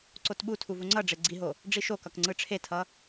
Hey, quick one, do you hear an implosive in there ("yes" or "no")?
yes